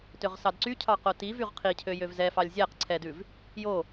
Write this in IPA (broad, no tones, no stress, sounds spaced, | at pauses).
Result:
t ø ʁ s ɑ d ǀ y cʰ ɑ q o t i v y ʁ qʰ i cʰ ø j ø v z ɛ f ɑ lʲ zʲ æ q ǀʰ ɛ d ʉ v | j o